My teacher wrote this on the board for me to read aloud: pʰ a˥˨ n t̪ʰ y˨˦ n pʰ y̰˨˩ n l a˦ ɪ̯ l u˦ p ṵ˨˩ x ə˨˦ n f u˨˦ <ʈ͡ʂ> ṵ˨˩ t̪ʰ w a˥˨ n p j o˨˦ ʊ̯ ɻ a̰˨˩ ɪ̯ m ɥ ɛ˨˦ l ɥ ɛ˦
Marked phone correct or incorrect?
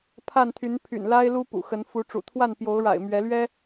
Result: correct